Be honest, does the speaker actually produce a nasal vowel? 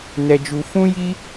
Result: yes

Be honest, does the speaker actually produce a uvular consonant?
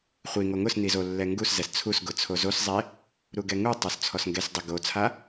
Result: yes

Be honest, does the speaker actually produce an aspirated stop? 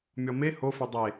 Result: no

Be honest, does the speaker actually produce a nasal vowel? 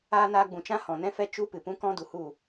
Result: yes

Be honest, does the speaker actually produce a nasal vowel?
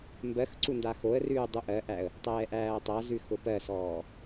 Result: no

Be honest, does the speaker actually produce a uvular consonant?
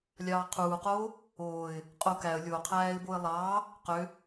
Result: yes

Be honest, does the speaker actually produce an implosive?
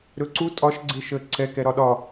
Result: yes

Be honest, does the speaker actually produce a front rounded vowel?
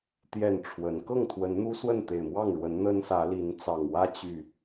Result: yes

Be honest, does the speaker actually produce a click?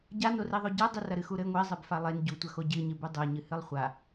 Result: no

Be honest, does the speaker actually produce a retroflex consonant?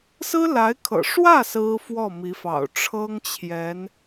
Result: yes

